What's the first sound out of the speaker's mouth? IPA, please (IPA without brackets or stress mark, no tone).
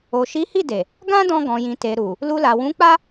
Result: o